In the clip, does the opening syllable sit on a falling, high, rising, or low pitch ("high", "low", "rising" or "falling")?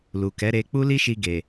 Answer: low